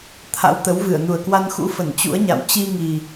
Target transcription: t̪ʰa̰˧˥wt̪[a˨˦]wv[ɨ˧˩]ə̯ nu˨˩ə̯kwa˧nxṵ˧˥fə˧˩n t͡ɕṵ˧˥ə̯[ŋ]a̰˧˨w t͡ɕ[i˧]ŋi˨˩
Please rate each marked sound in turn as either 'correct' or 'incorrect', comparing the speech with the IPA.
incorrect: ə˨˦, correct, incorrect: ɲ, correct

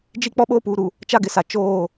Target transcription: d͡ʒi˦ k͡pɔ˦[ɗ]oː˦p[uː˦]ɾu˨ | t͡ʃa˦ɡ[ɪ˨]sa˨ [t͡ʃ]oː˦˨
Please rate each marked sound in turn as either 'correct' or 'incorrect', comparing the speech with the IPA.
incorrect: ɓ, incorrect: uː˨, correct, correct

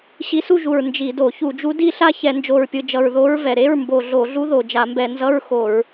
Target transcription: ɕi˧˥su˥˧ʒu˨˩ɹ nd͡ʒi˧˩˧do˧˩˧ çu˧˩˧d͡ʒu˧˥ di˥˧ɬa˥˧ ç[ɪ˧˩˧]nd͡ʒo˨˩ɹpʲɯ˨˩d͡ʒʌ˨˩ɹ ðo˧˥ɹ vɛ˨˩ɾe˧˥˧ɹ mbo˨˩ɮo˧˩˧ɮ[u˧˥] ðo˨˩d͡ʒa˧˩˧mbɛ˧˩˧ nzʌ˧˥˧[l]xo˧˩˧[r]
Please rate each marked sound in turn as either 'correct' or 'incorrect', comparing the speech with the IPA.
incorrect: ɛ˧˩˧, correct, incorrect: ɹ, incorrect: ɹ

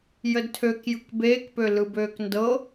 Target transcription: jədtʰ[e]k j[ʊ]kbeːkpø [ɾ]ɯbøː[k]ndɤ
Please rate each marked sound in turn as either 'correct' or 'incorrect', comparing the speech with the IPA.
incorrect: ø, incorrect: ɯ, incorrect: l, correct

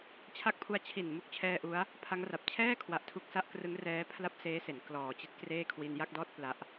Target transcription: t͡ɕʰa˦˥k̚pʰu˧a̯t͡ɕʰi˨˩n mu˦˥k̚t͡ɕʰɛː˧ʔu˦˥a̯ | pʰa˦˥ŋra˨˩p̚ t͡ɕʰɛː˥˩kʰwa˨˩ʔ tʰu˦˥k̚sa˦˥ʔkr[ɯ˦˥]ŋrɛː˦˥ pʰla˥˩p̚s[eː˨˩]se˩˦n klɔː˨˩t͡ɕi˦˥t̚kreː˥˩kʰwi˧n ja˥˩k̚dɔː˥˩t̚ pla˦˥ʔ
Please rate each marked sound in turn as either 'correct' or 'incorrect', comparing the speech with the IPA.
correct, incorrect: eː˦˥

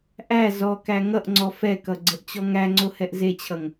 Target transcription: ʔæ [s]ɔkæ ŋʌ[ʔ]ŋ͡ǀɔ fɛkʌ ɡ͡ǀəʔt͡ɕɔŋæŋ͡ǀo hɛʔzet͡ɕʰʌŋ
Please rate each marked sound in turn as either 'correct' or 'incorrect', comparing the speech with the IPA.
incorrect: z, correct

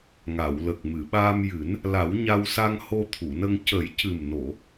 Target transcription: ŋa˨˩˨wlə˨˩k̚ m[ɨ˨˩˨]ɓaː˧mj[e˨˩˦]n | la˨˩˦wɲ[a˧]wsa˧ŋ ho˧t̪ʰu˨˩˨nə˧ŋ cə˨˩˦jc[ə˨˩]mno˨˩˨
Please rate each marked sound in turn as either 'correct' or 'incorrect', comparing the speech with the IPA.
correct, incorrect: ɨ˨˩˦, correct, incorrect: ɨ˨˩

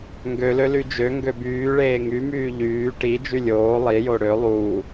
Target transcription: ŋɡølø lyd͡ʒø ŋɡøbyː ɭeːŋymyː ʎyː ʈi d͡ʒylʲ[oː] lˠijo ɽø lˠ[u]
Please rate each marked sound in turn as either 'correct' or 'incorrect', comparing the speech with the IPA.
correct, incorrect: uː

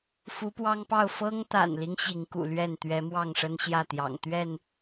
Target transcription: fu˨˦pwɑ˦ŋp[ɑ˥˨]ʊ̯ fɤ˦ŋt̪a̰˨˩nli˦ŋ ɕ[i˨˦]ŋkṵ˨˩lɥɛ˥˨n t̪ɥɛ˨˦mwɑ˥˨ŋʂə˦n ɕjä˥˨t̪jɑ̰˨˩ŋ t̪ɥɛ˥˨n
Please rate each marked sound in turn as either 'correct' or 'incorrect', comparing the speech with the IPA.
correct, correct

